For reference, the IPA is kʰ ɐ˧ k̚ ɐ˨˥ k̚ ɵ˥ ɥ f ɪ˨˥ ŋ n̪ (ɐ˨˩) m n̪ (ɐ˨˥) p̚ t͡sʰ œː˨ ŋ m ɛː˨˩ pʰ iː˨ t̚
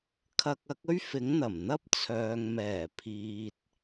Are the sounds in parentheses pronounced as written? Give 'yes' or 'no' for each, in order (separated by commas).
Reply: yes, no